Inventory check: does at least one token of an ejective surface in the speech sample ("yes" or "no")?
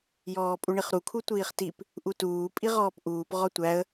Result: yes